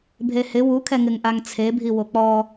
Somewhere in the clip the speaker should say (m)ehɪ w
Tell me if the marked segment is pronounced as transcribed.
no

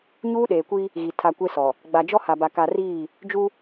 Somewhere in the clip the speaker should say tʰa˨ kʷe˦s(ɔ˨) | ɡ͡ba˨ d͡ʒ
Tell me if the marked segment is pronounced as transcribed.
yes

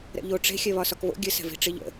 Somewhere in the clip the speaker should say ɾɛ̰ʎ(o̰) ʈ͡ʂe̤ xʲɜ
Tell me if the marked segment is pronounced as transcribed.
no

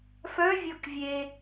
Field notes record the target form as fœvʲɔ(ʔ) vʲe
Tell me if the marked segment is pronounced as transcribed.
no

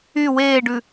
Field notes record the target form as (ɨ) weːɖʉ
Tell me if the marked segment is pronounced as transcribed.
no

